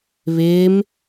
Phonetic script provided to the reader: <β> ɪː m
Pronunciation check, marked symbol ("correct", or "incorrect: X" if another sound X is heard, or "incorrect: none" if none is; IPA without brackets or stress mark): correct